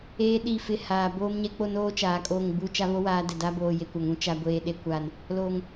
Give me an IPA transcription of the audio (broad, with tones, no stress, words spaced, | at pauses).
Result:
eː˦ɗi˦˨fɪ˦ haː˨ boː˦mɲɛ˦ k͡po˦noː˦t͡ʃaː˨ kʼoː˦˨ŋɡ͡bu˦ t͡ʃa˦βo˦waː˨˦ dɛ˨da˦boː˨ je˨kʷa˨ŋũ˨˦ t͡ʃa˨ ɡʷeː˨ɗe˨kʷaː˨n | loː˨ŋ